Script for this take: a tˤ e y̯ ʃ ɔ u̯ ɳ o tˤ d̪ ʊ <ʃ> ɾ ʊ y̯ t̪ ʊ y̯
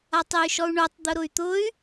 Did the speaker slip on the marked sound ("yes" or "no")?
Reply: yes